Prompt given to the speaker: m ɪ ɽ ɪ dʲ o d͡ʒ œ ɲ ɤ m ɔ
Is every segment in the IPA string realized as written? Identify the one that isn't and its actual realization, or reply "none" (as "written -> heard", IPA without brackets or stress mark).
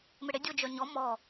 ɤ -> ɔ